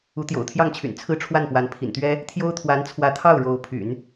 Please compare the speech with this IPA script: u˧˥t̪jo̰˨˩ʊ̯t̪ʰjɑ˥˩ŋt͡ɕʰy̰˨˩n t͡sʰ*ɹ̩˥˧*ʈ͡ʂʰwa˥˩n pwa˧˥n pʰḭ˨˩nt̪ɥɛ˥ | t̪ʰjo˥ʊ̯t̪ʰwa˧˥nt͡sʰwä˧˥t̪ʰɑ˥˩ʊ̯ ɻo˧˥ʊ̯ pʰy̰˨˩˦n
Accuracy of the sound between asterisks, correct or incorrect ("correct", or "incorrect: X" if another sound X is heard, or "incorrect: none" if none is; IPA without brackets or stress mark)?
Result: correct